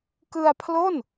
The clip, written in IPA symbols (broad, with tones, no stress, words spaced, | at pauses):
kɯ˧a̯pʰlo˥˩n